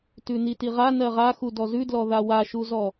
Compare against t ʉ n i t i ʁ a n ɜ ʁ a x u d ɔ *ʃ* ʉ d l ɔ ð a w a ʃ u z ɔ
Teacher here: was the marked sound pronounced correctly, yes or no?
no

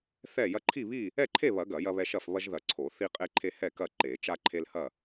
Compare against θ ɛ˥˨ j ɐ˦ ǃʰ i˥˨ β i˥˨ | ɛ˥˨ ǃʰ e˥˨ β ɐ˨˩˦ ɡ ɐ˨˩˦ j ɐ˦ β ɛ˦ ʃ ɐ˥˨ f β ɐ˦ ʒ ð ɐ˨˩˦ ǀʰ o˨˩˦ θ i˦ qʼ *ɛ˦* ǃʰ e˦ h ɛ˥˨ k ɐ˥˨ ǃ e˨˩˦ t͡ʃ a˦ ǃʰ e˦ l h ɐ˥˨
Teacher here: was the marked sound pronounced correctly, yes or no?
no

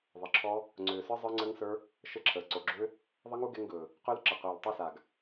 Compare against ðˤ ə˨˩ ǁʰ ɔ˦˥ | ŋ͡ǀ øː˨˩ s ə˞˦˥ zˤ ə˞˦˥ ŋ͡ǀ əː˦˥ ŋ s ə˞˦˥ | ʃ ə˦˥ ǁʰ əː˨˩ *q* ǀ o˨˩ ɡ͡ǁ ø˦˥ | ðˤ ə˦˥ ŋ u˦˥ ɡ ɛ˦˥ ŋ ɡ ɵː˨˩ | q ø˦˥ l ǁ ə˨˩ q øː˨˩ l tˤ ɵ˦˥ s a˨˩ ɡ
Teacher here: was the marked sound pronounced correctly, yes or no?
no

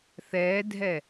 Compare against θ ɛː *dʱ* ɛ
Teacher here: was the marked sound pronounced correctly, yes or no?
yes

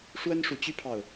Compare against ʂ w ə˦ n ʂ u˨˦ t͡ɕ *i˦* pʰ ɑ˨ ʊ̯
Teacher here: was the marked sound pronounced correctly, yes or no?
no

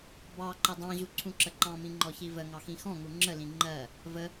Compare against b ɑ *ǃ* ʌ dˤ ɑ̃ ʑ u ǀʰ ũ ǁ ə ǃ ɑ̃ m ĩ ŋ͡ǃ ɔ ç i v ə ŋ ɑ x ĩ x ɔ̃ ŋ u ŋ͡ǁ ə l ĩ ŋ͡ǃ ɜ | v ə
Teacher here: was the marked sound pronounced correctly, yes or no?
yes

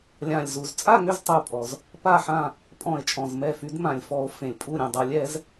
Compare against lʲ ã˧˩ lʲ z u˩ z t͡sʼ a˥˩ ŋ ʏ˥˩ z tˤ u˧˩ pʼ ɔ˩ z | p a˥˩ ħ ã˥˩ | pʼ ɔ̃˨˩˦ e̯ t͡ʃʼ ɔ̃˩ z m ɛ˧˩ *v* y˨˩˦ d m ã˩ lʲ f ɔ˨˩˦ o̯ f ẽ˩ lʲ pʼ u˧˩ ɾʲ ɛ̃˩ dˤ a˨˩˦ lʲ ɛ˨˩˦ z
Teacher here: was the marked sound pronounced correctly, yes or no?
no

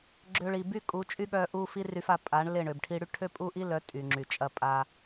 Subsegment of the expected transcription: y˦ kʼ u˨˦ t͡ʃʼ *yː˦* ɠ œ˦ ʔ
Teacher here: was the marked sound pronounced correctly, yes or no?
no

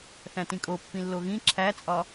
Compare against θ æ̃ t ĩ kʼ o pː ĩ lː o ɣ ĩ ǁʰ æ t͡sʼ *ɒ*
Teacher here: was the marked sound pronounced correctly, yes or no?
yes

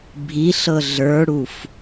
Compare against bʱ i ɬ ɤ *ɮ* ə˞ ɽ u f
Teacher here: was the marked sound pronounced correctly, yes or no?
yes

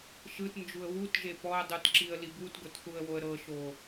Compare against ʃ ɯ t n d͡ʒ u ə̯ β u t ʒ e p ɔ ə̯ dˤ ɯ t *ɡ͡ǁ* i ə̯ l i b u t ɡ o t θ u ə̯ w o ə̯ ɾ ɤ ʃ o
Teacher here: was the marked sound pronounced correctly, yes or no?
no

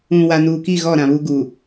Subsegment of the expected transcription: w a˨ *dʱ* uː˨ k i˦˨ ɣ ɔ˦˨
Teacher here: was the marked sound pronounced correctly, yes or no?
no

